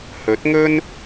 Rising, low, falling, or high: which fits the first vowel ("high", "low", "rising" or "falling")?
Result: rising